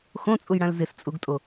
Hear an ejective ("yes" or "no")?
yes